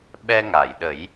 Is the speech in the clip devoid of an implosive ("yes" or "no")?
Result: no